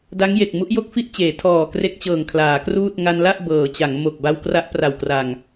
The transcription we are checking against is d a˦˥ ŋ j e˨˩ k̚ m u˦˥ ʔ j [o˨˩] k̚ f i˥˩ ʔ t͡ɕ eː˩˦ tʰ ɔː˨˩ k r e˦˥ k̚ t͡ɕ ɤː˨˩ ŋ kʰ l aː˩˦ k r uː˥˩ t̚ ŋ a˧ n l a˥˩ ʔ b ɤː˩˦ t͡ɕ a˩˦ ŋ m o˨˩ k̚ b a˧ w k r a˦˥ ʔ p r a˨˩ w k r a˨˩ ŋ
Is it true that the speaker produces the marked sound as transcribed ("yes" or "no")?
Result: no